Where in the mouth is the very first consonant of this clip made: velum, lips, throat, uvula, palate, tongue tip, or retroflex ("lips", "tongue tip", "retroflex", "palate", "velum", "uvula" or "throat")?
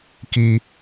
velum